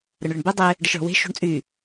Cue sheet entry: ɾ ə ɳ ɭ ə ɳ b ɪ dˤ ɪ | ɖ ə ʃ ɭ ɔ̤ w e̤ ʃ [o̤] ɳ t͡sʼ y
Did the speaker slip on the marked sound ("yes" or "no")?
no